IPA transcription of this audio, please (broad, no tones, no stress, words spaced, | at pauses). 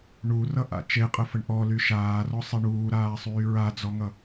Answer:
ɳurʌʔa̰ t͡ʃeqʼəfəɳ ʔɔly ʃaːrɔsˤe ɳuːɾaːsˤyː ɹad͡zɔŋʌ